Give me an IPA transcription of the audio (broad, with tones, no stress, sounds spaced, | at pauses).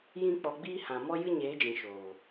j ĩ˦ k͡p ɔ˧ ɡ͡b iː˦ h ã˨ m ɔ˦ j ɨ˦ ɲ eː˨˦ d͡ʒ ĩ˨ ʃ oː˨